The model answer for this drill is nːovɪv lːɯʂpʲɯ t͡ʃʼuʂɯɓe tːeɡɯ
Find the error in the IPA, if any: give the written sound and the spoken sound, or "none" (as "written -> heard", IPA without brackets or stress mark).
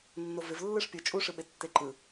ɡ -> ǃ